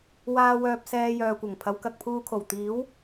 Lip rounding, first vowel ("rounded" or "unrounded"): unrounded